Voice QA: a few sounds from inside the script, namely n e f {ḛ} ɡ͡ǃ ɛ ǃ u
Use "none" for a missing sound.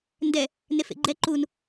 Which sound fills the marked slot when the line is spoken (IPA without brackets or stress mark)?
ḛ